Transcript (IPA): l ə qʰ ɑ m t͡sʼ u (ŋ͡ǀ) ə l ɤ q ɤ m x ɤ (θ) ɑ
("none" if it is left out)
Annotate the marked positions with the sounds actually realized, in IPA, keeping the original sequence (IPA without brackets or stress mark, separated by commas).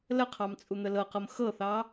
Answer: n̪, θ